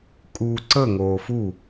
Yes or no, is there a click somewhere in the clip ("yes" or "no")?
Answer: yes